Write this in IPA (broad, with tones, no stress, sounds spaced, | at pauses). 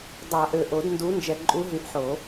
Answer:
dˤ a˨˩˦ ʔ ø˨˩ ʔ o˨˩˦ d n d u˨˦ n d͡ʒ ɛ˨˩ ǃʼ u˨˦ ɦ y˨˩˦ ʔ ħ o˨˩˦